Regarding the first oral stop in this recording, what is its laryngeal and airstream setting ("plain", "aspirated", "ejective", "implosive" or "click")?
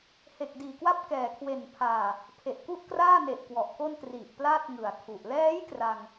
plain